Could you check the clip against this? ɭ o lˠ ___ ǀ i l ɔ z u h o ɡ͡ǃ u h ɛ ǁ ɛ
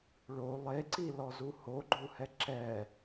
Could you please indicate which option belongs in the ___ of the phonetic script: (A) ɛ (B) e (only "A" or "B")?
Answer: B